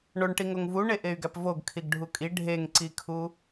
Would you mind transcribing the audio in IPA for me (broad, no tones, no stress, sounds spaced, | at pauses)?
ɳ o ɳ ʈ i ŋ o ŋ v u ɳ e ʔ e y̯ ɡ æ p v o ɡ kʰ i ɡ ɖʱ u kʼ i ɖʱ e ŋ ǀ i kʰ u